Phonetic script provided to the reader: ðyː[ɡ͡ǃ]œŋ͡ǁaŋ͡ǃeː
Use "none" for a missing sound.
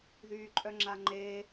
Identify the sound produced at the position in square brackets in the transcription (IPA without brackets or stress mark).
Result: ǃʼ